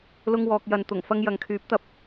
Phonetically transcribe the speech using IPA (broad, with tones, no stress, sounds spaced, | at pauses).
l ʊ˥ ŋ w ɔː˧ k̚ j ɐ˧ n t̪ ʊ˨˩ ŋ f ɐ˧ ŋ j ɐ˨ ŋ kʰ yː˨˥ p̚ t̪ ɐ˨ p̚